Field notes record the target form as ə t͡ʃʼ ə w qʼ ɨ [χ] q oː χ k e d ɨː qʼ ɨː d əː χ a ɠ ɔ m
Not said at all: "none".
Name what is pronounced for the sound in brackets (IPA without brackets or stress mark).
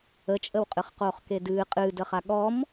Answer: χ